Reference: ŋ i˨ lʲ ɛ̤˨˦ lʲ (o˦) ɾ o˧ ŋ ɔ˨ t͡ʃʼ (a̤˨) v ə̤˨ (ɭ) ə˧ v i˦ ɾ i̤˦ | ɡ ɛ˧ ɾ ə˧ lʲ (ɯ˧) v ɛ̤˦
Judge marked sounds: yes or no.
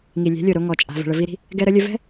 no, yes, yes, no

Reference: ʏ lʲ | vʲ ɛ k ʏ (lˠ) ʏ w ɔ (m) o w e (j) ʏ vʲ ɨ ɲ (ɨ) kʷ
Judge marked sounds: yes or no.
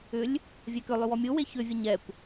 yes, no, no, no

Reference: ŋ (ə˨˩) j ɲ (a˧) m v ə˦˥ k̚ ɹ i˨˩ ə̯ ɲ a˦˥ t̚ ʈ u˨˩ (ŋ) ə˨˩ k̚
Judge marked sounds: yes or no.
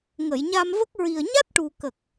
no, yes, no

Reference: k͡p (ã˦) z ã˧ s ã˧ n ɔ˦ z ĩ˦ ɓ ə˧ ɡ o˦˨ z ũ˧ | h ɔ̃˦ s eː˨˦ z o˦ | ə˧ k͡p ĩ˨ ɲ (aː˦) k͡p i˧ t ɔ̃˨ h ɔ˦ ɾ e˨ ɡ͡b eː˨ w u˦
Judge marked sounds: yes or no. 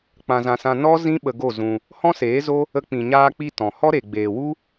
no, no

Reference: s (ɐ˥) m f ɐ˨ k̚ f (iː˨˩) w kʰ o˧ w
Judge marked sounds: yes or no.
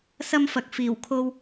yes, yes

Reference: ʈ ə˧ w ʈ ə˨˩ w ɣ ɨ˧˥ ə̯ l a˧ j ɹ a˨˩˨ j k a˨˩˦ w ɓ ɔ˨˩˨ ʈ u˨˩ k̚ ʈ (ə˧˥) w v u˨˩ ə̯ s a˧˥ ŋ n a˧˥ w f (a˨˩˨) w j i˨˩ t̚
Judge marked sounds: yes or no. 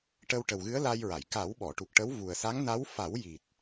yes, no

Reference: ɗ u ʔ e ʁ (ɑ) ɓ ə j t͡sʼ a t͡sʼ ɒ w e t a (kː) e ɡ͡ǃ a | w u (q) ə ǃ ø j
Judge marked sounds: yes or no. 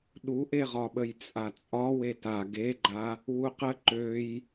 no, no, yes

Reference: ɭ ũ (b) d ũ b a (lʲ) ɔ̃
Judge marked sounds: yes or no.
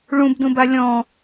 yes, yes

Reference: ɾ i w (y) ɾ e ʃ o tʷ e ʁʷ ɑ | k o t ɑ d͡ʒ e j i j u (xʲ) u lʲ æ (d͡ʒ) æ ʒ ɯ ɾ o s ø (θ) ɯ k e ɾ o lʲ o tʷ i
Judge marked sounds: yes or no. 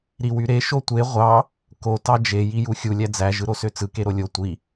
yes, yes, no, no

